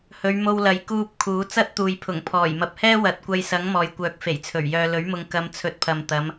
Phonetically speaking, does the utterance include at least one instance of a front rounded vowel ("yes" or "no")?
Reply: yes